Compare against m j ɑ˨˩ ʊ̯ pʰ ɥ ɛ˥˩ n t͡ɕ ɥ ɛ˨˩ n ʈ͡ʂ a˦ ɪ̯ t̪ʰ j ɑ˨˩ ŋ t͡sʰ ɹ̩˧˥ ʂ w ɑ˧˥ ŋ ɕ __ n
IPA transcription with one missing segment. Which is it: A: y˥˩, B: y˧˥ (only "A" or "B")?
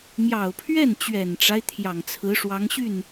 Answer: A